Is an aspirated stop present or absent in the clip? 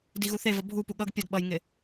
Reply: absent